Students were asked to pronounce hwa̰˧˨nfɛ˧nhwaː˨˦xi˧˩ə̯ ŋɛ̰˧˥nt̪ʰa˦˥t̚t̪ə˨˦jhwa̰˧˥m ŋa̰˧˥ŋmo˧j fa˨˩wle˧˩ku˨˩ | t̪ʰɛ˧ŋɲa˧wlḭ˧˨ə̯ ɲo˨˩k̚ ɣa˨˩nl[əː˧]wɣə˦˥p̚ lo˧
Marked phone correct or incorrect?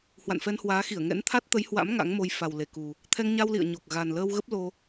correct